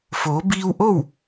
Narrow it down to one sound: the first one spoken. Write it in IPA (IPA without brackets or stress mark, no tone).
f